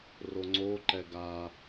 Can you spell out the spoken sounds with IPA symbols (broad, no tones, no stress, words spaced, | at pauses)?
roŋ͡ǀo ǃɛɡa